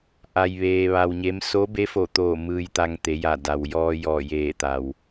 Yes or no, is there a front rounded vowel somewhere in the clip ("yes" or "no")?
no